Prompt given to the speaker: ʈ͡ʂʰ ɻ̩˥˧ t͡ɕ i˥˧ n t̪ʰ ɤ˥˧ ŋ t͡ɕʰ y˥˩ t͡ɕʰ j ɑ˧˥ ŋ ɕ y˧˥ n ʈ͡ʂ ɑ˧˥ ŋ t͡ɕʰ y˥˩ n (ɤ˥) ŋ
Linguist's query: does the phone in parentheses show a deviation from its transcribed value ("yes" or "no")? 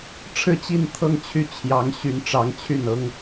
no